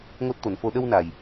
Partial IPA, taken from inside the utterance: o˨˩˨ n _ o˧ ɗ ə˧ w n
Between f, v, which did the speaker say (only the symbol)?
f